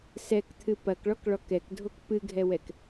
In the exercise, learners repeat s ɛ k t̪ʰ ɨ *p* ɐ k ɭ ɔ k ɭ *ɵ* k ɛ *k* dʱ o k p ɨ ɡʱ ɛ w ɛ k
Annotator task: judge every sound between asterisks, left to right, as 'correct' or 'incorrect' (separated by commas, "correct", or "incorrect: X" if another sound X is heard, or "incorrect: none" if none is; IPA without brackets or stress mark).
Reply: correct, incorrect: ɔ, correct